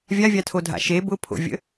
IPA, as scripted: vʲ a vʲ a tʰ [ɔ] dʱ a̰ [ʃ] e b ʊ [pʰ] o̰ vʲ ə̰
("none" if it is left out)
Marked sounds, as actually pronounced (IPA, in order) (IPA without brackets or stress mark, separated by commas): o, ʃ, pʰ